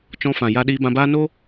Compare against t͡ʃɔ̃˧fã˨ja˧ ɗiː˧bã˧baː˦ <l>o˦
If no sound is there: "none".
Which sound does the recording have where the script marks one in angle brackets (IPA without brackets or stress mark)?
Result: n